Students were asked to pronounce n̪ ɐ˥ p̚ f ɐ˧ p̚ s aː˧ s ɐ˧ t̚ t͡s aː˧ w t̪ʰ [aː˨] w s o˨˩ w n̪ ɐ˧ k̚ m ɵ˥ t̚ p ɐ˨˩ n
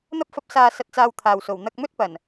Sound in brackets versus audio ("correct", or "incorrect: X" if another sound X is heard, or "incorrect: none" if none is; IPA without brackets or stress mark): correct